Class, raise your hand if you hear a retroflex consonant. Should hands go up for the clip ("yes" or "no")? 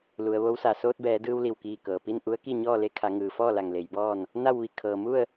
no